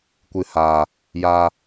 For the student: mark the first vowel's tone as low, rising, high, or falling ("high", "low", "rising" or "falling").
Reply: low